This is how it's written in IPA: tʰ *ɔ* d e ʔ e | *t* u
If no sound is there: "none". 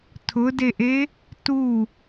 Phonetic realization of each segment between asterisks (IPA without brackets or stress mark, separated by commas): ʊ, t